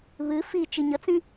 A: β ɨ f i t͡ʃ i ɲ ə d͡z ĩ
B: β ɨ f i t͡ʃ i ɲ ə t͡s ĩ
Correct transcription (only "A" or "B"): B